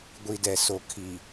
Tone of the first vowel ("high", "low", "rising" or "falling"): low